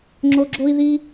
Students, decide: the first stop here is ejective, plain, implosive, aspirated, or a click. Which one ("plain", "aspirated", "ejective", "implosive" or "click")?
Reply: click